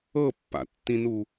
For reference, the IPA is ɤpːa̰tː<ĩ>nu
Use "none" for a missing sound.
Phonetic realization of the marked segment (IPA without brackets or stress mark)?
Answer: ĩ